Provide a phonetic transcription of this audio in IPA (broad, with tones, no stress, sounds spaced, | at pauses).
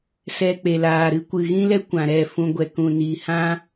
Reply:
s ɛ˧ k͡p e˨ l aː˨ ɾ ɨ˧ kʷ ɨ˨ ɣ ĩ˦ l ɛ˦ kʷ ã˨ ɾ ɛ˦˨ f ũ˧ ɡʷ ɛ˨ k ũ˨ n iː˨ h ã˦